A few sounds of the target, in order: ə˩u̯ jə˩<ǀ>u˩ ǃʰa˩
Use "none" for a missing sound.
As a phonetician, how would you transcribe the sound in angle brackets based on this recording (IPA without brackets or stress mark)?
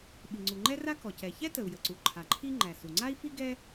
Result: ǀ